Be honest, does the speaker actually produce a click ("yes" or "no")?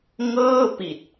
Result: no